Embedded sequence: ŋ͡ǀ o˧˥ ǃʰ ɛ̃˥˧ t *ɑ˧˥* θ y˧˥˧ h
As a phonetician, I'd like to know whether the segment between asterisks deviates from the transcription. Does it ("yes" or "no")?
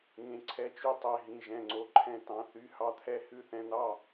yes